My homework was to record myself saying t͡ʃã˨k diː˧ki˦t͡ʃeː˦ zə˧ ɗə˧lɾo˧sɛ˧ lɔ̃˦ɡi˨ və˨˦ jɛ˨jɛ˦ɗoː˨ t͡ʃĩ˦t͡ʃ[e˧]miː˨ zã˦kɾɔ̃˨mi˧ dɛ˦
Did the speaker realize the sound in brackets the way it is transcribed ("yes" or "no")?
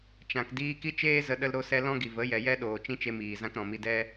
yes